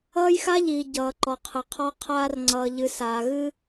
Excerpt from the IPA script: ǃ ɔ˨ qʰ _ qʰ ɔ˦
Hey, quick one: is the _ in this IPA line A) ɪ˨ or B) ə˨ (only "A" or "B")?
B